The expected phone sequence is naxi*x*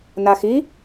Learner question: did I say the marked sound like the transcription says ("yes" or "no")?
no